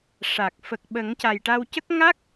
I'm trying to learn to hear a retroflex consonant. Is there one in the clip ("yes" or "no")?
yes